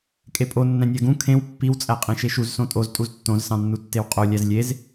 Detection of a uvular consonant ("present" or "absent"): present